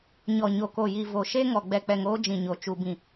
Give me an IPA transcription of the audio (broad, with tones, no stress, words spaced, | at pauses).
ɲɔ˨ ɲo˨ko˨ji˨ vo˨ʃe˦ŋɔ˨ ɡ͡bɛ˨k͡pɛ˨ŋ oː˦ d͡ʒĩ˨ɲo˨ t͡ʃu˨bĩ˨